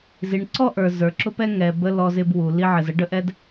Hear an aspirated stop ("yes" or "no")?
no